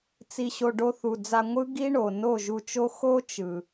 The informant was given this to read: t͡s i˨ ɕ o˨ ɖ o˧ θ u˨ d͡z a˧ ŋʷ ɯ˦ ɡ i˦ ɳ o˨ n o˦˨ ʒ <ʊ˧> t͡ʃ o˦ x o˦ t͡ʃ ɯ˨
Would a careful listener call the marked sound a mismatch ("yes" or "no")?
yes